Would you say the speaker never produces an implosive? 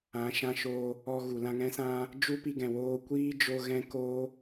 yes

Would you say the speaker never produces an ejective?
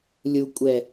no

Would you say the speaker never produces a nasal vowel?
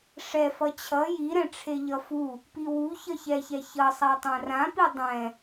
no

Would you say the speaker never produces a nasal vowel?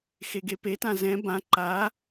no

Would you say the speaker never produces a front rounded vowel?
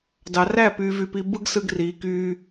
no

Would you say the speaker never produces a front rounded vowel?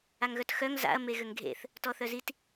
no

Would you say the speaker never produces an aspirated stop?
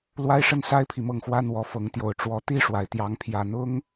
no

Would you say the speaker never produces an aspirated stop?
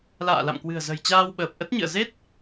yes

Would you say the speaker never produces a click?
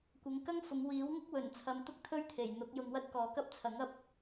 yes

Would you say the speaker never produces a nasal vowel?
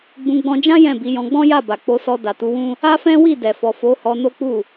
no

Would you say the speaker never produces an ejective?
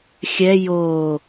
yes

